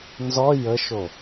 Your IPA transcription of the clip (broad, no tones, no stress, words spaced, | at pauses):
nzɔ jəʃo